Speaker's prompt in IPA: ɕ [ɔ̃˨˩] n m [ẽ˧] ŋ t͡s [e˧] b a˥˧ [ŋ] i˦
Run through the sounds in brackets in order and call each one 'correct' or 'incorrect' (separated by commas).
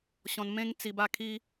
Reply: incorrect, correct, incorrect, incorrect